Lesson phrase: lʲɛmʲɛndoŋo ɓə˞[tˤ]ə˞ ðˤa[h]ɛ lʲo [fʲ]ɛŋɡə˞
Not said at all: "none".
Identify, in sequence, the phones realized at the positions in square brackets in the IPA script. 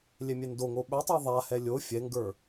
tˤ, h, fʲ

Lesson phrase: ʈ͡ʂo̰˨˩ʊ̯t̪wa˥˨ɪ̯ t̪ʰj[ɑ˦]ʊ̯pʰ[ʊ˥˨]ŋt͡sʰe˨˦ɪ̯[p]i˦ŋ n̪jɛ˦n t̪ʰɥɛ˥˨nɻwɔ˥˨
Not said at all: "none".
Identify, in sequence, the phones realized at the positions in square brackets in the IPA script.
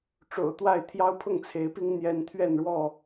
ɑ˦, ʊ˥˨, p

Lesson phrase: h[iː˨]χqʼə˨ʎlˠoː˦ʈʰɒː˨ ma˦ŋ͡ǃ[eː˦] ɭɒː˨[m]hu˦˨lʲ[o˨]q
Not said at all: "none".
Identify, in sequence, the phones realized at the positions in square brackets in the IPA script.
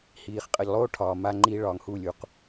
iː˨, iː˦, ŋ, u˨

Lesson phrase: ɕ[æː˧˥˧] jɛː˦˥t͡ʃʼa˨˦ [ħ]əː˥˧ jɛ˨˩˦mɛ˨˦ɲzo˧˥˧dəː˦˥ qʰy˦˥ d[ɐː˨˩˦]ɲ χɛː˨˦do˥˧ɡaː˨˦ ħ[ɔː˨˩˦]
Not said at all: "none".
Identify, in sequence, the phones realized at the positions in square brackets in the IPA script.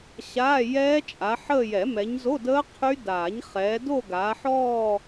aː˧˥˧, ħ, aː˨˩˦, ɔː˥˧

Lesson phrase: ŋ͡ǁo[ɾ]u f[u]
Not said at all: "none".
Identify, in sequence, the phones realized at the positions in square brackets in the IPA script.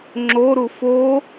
ɾ, o

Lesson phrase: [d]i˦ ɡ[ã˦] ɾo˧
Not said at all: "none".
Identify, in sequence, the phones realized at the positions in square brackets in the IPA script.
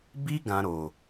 b, ã˦

